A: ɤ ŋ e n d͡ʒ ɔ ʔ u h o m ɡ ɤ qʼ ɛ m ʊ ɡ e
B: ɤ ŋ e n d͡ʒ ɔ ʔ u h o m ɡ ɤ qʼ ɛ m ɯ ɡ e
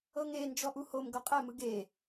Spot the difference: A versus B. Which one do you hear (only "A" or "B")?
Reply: B